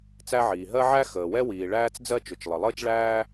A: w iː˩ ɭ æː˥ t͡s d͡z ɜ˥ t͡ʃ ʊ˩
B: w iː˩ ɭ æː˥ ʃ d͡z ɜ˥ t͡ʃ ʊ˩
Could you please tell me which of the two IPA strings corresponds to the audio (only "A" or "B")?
A